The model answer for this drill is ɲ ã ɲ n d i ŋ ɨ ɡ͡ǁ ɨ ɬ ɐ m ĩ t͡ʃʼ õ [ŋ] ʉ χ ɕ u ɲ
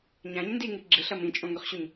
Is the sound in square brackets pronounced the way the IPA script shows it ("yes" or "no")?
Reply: yes